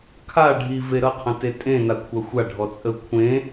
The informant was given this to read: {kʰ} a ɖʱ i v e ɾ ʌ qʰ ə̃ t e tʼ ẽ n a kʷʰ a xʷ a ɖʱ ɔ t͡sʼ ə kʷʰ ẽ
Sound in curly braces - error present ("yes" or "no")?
no